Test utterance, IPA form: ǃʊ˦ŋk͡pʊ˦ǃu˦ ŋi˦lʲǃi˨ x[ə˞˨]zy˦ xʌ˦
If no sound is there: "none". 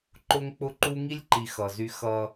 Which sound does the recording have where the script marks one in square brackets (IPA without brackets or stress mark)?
ʌ˨